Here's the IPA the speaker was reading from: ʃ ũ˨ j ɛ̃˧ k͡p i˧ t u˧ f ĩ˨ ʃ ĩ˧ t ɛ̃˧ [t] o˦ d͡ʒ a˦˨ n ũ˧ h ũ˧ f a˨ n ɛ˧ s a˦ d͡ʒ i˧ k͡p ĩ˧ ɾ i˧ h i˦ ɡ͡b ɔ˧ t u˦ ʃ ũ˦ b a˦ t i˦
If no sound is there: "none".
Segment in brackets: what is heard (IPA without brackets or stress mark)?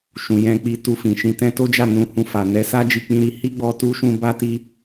t